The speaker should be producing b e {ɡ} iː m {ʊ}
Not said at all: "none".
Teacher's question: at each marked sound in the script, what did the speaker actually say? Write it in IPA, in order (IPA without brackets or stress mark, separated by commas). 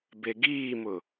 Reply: ɡ, ʊ